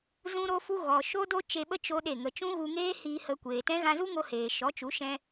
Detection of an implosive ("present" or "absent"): present